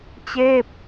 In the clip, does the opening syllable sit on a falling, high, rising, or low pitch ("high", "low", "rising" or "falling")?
falling